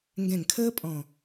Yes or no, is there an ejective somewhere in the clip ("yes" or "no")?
yes